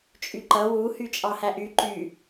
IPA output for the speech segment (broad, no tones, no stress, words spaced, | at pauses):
t͡ʃʼyǃʌ wu hyt͡ʃʼɑhæʔy ǃy